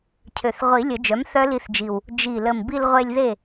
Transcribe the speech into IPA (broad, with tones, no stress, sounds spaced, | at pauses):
cʰ ø˨˩ θ ʁʷ i˨˩˦ lʲ ə˨˩˦ d͡ʒ œ˩˥ m θ œ˦˥ l i˧ θ d͡ʒ i˨˩ w | d͡ʒ i˨˩ l ə˨˩ m b i˧ l ʁʷ e˧ lʲ ð e˥˨